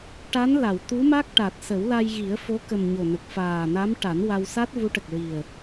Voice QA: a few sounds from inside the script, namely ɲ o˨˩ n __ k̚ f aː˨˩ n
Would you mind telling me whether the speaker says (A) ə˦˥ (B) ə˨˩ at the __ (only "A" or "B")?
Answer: B